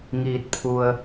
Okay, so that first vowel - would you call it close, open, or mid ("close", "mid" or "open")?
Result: close